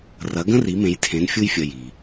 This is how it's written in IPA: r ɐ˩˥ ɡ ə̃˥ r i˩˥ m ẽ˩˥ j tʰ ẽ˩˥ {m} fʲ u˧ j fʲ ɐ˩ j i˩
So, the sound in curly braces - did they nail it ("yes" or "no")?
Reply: no